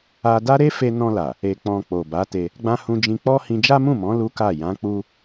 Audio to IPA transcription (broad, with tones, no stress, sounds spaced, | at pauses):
a˧ d a˦ ɾ e˦ f e˧ n ɔ̃˧ l a˨ | e˨ k͡p ɔ̃˨ k͡p o˨ b a˨˦ t e˧ | ɡ͡b ã˦ h ũ˧ d͡ʒ ĩ˧ k͡p ɔ˦ h ĩ˧ d͡ʒ a˦ m ũ˦˨ m ɔ̃˨˦ l u˦ k a˦˨ j ã˨˦ k͡p u˦